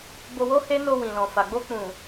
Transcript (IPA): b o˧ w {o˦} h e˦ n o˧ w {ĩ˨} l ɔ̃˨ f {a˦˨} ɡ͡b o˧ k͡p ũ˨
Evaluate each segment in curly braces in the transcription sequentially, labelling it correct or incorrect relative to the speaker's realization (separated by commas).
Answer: correct, correct, incorrect